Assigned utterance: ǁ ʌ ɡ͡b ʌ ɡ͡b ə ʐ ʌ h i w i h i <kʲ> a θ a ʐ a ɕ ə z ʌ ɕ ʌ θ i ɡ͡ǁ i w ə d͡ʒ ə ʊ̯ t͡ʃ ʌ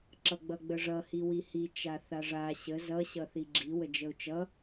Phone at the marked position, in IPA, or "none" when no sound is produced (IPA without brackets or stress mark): t͡ʃ